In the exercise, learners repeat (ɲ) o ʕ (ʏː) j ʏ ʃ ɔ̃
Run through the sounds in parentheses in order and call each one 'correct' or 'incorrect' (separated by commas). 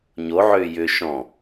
correct, correct